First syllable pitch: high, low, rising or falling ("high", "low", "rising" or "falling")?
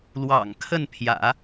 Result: low